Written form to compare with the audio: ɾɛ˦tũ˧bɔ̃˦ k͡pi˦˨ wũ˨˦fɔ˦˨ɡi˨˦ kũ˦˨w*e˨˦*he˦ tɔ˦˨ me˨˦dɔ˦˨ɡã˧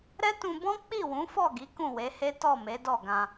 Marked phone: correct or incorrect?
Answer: correct